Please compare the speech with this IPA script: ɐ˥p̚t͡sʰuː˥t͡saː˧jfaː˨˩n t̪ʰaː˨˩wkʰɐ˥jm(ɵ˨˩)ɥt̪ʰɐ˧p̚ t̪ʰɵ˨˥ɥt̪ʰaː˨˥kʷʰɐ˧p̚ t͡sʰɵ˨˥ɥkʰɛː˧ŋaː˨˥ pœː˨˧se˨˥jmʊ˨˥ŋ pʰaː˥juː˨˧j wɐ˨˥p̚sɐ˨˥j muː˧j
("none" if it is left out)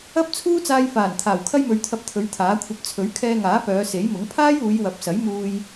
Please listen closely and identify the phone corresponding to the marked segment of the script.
ɵ˨˧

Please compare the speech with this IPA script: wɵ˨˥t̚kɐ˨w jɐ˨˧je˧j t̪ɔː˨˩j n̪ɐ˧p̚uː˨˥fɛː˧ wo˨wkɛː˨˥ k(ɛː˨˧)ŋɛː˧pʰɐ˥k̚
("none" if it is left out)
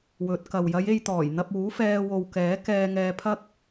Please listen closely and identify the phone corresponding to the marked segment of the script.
ɛː˧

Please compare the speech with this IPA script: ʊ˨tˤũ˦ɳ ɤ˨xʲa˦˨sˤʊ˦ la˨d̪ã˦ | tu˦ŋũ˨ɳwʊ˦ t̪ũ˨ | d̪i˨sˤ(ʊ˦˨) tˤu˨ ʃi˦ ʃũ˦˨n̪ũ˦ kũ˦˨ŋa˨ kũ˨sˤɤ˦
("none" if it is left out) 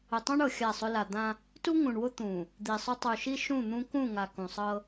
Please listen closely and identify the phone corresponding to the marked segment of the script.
ʊ˦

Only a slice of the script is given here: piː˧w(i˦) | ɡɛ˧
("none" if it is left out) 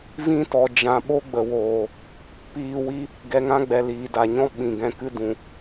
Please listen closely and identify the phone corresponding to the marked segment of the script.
i˦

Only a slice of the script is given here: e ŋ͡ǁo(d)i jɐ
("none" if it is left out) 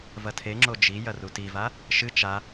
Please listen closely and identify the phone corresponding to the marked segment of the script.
d͡ʒ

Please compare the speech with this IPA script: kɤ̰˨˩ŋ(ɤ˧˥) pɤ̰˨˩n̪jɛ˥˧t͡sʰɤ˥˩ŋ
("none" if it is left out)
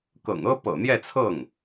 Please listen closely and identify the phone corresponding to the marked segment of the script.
ɤ˥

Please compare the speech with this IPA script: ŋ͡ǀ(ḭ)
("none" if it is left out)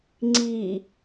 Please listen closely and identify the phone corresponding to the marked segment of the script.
i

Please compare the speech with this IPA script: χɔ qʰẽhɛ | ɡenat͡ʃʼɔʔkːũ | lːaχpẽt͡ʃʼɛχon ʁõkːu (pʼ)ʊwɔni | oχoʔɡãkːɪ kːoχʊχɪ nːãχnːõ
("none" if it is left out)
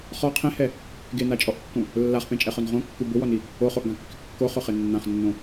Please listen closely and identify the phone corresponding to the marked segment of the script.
b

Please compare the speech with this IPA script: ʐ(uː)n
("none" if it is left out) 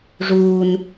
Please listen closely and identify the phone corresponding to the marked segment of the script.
uː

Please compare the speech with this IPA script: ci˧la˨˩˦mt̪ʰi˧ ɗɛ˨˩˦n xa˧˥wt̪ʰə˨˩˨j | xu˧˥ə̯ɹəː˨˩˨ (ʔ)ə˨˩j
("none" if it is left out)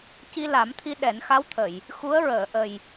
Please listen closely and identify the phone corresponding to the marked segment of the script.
ʔ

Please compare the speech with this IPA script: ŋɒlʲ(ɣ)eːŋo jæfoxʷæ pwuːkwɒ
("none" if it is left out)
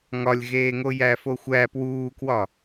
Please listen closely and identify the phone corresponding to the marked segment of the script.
ɣ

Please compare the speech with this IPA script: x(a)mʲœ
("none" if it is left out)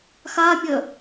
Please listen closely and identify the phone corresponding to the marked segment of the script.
a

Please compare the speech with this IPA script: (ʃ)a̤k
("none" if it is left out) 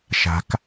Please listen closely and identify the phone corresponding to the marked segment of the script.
ʃ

